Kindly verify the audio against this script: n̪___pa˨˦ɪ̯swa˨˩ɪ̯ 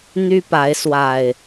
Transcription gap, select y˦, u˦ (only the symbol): y˦